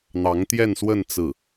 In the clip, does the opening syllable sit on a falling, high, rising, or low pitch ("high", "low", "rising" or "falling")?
rising